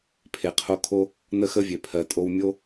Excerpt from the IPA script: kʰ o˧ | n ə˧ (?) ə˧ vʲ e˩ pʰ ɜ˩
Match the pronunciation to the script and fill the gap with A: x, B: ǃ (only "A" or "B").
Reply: A